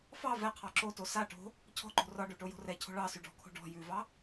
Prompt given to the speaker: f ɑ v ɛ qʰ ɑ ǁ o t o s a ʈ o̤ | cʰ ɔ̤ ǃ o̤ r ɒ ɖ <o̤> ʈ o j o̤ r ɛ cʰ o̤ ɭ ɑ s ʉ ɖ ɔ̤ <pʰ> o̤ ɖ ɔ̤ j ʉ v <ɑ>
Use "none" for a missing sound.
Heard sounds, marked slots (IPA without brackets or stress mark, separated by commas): o, kʰ, ɑ